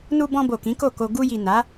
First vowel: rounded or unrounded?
rounded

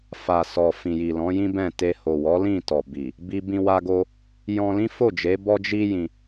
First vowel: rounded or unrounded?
unrounded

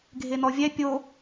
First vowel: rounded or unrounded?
unrounded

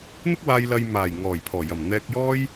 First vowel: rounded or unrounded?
unrounded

